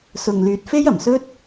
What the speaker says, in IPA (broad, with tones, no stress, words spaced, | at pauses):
sʊ˨ŋlyː˨t̚fe˥jɐ˨˩m sɵ˥t̚